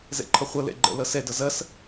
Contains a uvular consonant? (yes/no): yes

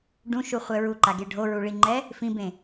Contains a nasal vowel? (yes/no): yes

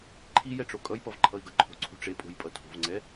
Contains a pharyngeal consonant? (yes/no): no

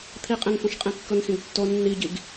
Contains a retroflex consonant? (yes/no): no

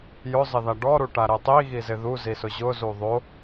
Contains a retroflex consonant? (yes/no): yes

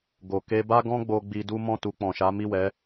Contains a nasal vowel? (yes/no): yes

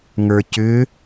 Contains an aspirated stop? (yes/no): no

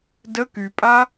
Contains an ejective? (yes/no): yes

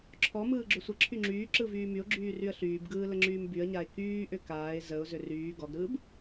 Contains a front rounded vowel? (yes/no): yes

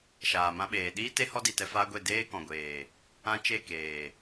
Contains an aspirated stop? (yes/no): no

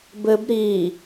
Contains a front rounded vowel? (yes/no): no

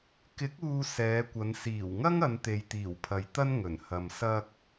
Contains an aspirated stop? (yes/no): yes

